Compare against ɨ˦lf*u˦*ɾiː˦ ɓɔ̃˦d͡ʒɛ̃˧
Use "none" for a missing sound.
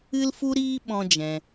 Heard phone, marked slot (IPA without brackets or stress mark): u˦